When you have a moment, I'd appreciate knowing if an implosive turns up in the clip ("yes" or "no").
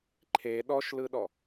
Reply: yes